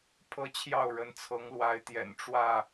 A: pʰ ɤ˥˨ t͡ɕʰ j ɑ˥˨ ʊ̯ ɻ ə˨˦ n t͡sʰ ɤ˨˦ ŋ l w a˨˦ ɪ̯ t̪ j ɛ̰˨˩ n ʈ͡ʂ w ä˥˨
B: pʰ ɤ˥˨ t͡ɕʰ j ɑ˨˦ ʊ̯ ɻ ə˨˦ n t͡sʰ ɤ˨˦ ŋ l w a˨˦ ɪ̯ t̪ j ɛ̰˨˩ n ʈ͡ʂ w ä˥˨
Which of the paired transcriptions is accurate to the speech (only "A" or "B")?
A